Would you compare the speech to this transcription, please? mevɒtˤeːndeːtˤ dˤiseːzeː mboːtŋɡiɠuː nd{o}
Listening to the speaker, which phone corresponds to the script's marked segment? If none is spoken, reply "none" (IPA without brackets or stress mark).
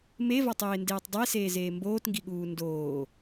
oː